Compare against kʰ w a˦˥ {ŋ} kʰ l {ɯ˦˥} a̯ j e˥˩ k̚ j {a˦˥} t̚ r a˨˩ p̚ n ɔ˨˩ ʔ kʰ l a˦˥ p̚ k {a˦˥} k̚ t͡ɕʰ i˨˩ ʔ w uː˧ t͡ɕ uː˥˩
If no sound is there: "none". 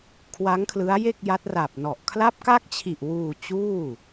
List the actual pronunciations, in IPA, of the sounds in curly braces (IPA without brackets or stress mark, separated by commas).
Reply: ŋ, ɯ˦˥, a˦˥, a˦˥